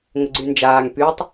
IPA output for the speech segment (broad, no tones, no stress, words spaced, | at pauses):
ŋəɡ͡ǀynd͡ʒaːŋ pytˤ